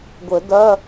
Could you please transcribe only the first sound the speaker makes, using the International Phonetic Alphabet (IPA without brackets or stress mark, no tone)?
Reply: ɡʷ